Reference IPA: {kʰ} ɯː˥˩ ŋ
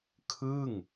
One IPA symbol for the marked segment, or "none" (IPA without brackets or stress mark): kʰ